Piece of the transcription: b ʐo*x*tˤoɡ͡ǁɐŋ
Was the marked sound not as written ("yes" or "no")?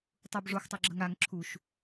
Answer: no